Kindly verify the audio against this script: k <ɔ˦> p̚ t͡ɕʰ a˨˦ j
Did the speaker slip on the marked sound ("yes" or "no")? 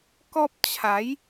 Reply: no